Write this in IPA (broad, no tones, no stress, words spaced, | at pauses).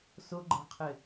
sʊɡ͡ǃɛ̤qʰɪ